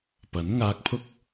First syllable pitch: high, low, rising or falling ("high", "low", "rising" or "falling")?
rising